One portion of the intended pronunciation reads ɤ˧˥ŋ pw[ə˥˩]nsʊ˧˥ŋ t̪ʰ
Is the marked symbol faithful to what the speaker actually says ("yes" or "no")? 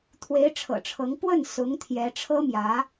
yes